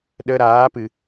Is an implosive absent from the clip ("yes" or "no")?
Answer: no